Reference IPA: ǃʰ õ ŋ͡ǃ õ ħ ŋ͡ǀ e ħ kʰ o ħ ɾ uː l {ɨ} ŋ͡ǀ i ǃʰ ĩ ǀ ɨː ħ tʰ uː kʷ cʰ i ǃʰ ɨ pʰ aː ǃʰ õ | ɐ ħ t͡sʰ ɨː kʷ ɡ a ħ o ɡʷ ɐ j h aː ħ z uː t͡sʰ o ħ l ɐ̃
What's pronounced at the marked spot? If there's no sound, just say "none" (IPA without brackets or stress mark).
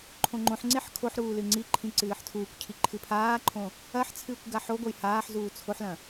ɨ